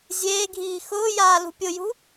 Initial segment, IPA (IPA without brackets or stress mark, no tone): zʲ